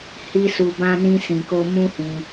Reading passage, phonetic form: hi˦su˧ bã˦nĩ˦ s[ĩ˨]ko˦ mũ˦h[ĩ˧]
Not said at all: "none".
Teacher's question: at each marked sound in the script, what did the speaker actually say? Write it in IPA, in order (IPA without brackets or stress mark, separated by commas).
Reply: ĩ˧, ĩ˧